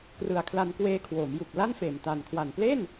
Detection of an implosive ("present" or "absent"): absent